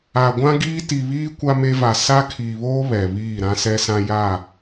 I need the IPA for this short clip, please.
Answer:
a˨ɡʷã˦ɡiː˦ ti˨βiː˦ kʷa˦me˦va˨ sa˦ kʰiː˨βoː˦ βɛ˨βiː˦˨ ɾã˦sɛ˦sã˦ ja˦˨

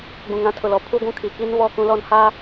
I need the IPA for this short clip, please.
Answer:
ɡ͡bũ˨ŋã˦tʰʊ˨lɔ˨˦ pʰu˦ɡʷũ˦ kʰi˨ki˦n βɔ˦˨kũ˦lɔ˦˨nhaː˦

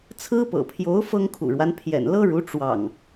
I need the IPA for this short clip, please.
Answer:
t͡sʰɹ̩˦pɤ̰˨˩ pʰjo˨˦ʊ̯ fɤ˦ŋkʰṵ˨˩ɻwa˦n pʰjɛ̰˨˩nlɤ˦ɻu˨˦ ʈ͡ʂwɑ̰˨˩ŋ

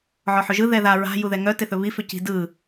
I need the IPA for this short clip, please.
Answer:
ʕɔħɵʒɯ ðɛða ɹa̤ juðɛŋœ teθɵβi fʏci̤dɯ

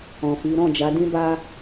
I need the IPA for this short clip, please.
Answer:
ɔ̃˨fi˨˦ ɾɔ̃˦˨d͡ʒa˨˦dĩ˦ba˦

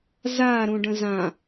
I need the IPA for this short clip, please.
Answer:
zaɾũɖə̃ zã

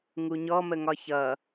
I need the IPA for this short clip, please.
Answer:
ŋuɲɔməŋɒ çʌ

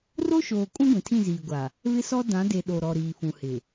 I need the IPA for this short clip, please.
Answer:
ro˦ʃoː˨kʼũ˦ ɡʷĩ˨tʰĩ˦˨ziː˨ɡʷa˨ | βɪ˦sɔ˦ dã˨˦de˨ ɗo˨ ɾɔ˨ɾiː˨ fũ˨hɪ˨

